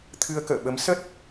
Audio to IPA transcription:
t̪ʰ ɨ˧ ə̯ k ə̰ː˧˨ ɓ ə˨˦ m s ə˦˥ t̚

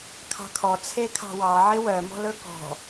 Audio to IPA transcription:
kʰ ɑ̤ kʰ ɔ t͡sʰ e kʰ ɑ̤ w ɑ ʕ ɪ w œ m ɔ̤ l ɵ k ɔ̤

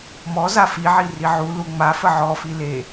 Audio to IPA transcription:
m ɔ z a f i ʕ i r i ʕ u l u ŋ͡m a f ə ʕ ɔ f i l e

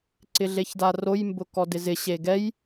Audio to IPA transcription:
ǀ ɪ ɮ e ç d a r o j m b ʊ k ɔ d ɪ z ɪ ɕ e ɡ ɛ j

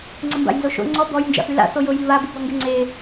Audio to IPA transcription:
ŋ͡ǀ ə m b a̰ j n z o ʃ o̰ ŋ͡ǀ ɔ b ɔ j n d͡ʒ a̰ f y l a̰ θ o j o j i β a b u b ɔ ŋ ɡ ø ŋ͡ǀ e

